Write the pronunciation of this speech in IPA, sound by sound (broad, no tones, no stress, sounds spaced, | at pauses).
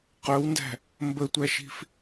q œ w n d æ̤ | m b ə tʷ æ ʃ i̤ f